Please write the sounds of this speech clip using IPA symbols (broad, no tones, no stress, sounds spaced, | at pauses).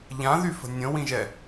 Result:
ʎ ã ð y f ə̤ nʲ ə̃ w ĩ ʒ ɛ